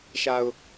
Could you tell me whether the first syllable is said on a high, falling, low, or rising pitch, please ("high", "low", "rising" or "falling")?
low